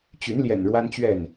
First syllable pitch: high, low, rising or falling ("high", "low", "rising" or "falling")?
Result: rising